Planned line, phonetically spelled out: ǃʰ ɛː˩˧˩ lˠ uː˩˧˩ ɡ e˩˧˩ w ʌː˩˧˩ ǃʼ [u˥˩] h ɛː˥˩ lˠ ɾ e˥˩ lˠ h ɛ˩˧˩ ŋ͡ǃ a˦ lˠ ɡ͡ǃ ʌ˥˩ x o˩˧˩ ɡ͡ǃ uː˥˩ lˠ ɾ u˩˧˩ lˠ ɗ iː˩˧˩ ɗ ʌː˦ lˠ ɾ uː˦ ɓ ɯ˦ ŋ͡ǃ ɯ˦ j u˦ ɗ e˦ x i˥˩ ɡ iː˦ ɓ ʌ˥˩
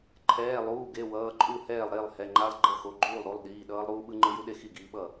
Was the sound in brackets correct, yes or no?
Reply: yes